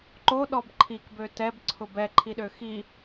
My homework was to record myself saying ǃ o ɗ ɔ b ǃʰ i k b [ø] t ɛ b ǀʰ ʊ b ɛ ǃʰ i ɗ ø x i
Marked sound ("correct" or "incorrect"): correct